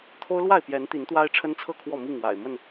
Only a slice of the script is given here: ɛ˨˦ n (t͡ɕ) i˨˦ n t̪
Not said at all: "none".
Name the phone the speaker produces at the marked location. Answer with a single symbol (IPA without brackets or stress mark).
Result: t̪